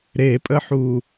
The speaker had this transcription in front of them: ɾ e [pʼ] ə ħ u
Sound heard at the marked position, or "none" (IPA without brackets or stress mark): pʼ